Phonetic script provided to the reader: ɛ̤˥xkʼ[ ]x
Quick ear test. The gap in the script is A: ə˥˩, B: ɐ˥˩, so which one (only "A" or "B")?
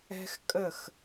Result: A